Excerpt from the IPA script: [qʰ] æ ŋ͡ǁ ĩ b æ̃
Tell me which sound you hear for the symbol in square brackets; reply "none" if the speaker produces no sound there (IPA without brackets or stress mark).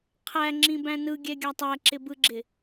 qʰ